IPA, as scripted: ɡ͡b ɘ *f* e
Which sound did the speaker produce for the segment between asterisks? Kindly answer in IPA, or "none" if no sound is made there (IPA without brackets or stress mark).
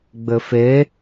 f